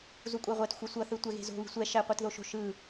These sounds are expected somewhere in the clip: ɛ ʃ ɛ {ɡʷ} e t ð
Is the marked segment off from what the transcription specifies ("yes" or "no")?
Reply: yes